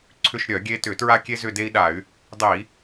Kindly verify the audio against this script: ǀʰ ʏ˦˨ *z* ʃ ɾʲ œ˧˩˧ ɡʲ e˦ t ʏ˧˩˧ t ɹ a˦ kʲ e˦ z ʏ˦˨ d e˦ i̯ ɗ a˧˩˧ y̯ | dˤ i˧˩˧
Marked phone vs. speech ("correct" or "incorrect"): incorrect